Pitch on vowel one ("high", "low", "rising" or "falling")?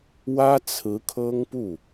high